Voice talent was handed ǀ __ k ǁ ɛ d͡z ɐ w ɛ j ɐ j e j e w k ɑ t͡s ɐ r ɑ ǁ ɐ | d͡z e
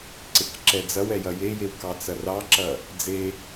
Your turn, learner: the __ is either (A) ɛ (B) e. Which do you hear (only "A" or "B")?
B